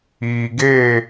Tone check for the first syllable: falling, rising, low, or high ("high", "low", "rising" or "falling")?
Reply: low